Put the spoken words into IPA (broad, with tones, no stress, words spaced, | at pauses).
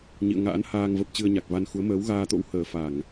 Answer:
ɲḭ˧˨ə̯ŋa̰ː˧˥nhaː˧ŋvə˨˩p̚ t͡ɕɨ˧ə̯ɲa˨˩k̚va˧nxu˨˦ə̯ məː˨˦wɣaː˧t̪o̰˧˥w həː˨˩fa˧˩˨ŋ